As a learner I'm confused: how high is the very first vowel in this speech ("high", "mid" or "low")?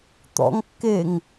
mid